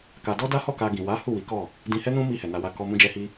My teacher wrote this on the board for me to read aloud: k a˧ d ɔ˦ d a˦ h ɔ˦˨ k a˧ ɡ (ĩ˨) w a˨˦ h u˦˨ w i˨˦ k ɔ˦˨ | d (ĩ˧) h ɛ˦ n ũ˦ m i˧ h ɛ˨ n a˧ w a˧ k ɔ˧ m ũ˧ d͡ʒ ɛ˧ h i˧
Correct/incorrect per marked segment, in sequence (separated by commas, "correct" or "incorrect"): correct, correct